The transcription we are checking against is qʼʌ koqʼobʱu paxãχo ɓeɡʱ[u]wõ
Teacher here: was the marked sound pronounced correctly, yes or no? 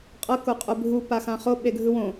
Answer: no